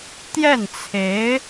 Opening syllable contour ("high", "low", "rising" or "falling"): falling